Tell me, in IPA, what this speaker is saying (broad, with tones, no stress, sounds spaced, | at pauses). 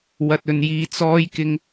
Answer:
w ɐ˨ t̚ ɵ˨ n j iː˨ t͡s ɔː˨˧ j k ɪ˨˧ ŋ